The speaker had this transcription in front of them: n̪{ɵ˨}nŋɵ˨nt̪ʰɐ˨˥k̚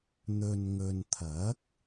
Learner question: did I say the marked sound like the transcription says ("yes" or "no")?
yes